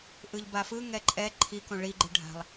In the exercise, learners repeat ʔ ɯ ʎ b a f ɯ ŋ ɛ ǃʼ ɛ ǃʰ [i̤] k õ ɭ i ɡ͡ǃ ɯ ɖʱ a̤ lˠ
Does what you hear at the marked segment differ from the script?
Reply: yes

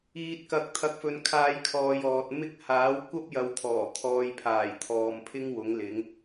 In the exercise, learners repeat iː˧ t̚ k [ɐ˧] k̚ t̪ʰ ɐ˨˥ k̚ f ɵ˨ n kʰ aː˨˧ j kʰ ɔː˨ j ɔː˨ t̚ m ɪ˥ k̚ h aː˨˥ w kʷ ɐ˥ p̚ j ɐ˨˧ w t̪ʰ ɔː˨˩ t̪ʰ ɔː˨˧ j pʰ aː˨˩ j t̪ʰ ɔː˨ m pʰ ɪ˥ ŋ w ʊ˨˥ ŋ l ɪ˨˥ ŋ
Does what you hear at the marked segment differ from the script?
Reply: no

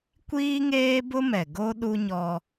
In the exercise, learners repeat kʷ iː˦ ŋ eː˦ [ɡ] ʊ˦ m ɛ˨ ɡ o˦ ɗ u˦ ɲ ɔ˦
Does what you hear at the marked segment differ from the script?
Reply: yes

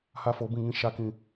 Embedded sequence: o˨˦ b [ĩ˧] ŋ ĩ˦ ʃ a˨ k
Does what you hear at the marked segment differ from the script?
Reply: yes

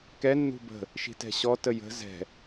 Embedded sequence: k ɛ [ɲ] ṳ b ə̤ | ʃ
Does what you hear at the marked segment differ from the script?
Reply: yes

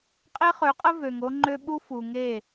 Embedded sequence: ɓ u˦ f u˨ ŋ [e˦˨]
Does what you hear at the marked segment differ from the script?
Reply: no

